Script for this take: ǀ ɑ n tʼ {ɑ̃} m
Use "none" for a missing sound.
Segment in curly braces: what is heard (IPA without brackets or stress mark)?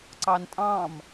ɑ̃